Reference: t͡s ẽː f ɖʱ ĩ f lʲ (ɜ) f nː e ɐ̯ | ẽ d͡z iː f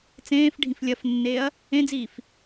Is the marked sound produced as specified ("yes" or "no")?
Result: yes